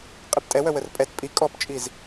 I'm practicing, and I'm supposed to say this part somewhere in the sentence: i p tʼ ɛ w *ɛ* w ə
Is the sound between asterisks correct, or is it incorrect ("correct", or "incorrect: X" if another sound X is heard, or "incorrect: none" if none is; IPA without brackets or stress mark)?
incorrect: œ